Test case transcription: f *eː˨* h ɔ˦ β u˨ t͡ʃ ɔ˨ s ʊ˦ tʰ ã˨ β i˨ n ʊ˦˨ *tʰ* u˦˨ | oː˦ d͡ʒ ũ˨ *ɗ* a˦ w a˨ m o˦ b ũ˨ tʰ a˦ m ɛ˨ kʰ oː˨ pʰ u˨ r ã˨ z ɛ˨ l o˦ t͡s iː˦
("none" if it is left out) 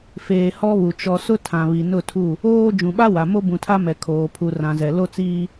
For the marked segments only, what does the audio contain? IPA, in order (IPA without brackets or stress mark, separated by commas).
eː˨, tʰ, ɓ